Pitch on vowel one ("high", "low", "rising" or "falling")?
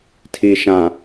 low